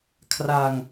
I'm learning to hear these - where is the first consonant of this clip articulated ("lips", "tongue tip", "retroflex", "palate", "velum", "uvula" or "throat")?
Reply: velum